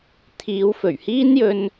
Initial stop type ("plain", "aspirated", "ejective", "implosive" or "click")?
aspirated